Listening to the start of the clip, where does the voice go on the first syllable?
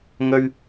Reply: high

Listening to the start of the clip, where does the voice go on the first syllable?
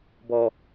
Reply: low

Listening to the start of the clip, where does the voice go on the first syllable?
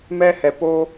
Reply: high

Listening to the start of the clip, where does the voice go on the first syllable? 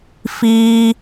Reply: high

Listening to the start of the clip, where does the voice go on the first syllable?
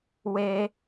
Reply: high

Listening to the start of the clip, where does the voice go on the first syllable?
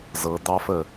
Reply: rising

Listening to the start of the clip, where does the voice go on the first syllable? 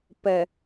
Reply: low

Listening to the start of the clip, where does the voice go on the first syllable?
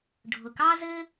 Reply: low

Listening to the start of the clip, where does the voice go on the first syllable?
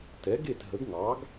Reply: rising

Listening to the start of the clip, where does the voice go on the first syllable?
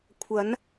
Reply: rising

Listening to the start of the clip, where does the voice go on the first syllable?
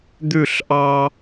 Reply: falling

